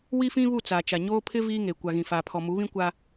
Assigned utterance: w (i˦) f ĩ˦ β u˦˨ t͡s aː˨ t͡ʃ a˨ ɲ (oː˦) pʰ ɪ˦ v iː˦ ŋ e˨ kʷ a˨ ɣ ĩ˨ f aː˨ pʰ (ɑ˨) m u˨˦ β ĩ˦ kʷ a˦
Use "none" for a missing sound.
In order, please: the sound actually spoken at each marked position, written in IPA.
i˦, oː˦, ɔ˨

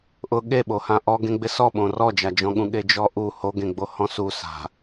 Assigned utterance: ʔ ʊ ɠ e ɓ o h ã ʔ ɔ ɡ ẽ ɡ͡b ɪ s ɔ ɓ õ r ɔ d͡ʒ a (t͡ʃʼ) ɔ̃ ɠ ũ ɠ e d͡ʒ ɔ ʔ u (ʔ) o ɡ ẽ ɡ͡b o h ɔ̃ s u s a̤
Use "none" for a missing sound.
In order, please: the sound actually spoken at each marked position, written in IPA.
d͡ʒ, h

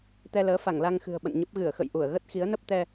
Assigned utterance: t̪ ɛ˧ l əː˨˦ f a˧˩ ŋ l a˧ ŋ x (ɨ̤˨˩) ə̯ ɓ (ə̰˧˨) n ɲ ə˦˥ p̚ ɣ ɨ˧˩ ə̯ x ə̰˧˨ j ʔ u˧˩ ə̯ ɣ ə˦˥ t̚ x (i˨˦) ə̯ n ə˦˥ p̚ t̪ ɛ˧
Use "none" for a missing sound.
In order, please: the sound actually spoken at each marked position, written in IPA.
ɨ̤˨˩, ə̰˧˨, i˨˦

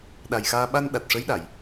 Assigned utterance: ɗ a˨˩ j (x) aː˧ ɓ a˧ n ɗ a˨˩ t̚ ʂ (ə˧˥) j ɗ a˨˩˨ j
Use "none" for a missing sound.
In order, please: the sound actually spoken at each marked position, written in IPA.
x, ə˧˥

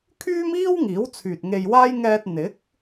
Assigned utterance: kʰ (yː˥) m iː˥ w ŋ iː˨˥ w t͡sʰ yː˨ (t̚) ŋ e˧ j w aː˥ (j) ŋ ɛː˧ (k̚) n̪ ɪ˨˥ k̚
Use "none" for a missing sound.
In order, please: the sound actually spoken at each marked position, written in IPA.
yː˥, t̚, j, t̚

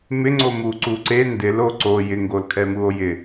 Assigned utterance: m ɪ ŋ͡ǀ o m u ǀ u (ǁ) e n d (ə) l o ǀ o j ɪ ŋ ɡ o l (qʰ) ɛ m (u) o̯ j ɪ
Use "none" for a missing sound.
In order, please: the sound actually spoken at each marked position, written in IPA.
ǀ, ɪ, kʰ, u

